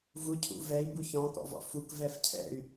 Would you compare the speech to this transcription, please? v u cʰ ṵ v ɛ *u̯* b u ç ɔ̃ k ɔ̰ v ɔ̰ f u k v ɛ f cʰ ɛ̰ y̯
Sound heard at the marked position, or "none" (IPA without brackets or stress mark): i̯